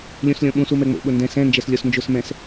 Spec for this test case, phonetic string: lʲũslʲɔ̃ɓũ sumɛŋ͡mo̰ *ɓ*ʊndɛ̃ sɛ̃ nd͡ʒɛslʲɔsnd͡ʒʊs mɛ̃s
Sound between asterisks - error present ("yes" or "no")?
no